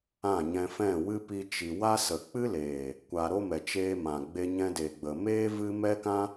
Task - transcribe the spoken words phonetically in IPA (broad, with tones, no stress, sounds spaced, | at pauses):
ã˦˨ ɲ ɛ̃˧ f ɛ̃˦˨ w ɨ˦ p i˧ t͡ʃ i˨ w a˦ s ə˨ k͡p ɨ˦ l eː˨ | kʷ a˧ ɾ o˦ m ɛ˨ t͡ʃ eː˧ m ã˨ ɡ͡b e˧ ɲ ɛ̃˧ d e˨ ɡ͡b ə˨ m eː˦ v ɨ˦ m ɛ˦ k ã˦